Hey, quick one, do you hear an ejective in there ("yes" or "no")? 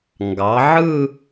no